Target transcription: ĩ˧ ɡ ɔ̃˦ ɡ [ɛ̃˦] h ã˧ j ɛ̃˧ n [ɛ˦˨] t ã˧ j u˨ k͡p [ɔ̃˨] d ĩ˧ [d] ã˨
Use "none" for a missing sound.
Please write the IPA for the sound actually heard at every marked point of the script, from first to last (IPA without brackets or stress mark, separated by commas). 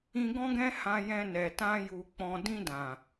ɛ̃˦, ɛ˨, ɔ̃˨, d